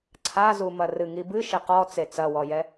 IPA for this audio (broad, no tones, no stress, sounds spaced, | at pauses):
ǀʰ a z u m ɐ r ɨ ŋ i b ɨ ʃ e q ɔ t͡s e t͡s ɐ w ɔ j ɛ